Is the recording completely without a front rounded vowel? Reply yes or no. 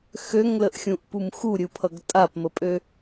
no